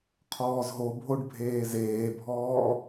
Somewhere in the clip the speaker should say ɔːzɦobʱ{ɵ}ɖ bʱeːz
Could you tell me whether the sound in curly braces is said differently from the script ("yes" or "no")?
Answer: yes